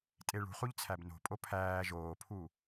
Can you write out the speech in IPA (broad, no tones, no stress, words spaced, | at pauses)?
tʼeɭṳχuʎ t͡sʰæbno̤pʼo pʰæː ʒoːpʰu